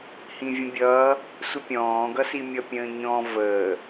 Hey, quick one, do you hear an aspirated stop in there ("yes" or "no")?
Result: no